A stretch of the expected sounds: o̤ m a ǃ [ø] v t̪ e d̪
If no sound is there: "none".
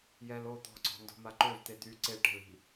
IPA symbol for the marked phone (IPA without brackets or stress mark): ø